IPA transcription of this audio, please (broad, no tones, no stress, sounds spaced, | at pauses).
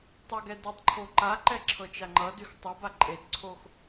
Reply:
tˤ ʌ ɡ ɛ d y tˤ ǃʰ o ǃ a ǃ ɛ ǁʰ ɤ t͡ʃ a ŋ͡ǃ ʌ d y x tˤ ɤ b a ǃʼ e d ǀʰ o x